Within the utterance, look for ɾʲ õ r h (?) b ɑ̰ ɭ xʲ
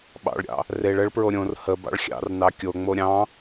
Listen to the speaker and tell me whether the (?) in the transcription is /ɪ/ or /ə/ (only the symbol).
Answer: ə